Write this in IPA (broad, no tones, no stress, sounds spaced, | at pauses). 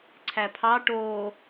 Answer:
ǀʰ æ pʰ ɑ ʈ oː